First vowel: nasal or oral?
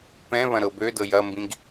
nasal